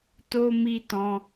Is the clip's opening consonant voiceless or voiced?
voiceless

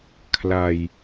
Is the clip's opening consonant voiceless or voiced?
voiceless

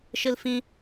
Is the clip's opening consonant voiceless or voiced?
voiceless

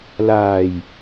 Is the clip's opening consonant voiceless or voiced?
voiced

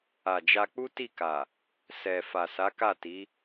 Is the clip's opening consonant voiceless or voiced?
voiced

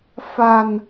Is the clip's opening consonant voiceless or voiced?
voiceless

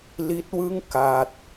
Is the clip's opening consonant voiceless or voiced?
voiced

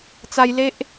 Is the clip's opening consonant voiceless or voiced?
voiceless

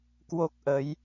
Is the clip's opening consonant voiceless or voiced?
voiceless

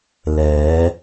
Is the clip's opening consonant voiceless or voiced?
voiced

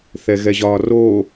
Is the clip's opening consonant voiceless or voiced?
voiceless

